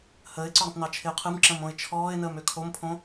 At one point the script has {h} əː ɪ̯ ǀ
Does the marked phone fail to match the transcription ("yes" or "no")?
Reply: no